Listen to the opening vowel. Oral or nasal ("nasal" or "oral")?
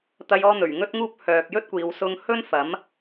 oral